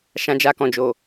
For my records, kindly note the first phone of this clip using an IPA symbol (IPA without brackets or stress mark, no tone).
ʃ